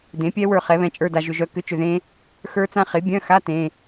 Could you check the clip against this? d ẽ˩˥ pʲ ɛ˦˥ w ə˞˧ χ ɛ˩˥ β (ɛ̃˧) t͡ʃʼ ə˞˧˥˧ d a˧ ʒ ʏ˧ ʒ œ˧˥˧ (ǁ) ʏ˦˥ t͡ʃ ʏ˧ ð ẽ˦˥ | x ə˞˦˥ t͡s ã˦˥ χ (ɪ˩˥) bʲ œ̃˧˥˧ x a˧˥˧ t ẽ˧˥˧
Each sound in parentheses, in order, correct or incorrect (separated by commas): correct, incorrect, correct